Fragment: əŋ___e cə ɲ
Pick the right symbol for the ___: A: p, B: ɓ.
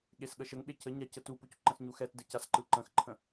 B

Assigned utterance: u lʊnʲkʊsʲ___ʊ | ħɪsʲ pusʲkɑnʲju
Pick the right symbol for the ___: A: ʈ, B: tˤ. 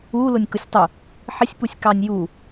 B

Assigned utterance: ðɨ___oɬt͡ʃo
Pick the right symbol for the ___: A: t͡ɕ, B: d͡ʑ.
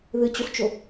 A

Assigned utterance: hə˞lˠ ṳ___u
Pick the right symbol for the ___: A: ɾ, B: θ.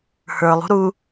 A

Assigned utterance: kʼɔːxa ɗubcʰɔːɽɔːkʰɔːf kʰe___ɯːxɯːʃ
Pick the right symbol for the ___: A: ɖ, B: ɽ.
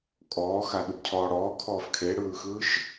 B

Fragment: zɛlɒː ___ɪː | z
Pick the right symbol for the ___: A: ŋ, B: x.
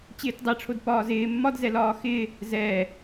B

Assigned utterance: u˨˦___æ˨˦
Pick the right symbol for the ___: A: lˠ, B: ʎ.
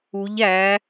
B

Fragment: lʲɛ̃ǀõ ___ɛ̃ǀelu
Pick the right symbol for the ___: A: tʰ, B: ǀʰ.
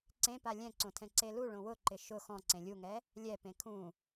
A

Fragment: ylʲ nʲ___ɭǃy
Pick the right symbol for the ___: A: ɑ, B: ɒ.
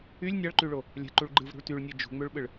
A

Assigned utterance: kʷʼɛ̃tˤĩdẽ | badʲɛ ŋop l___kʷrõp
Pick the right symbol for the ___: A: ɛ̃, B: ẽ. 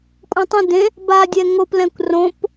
A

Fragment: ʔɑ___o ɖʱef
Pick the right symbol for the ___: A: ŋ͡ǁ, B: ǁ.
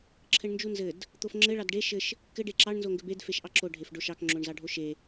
B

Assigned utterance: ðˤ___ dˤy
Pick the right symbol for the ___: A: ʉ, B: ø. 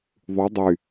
A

